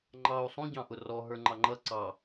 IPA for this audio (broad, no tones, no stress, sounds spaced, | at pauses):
ŋ͡ǃ ɑ u̯ sˤ ũ ɟ ɑ̃ ʔ ʊ r ɔ ɦ ə˞ ŋ͡ǃ ɑ ŋ͡ǃ ʌ ǀ ɑ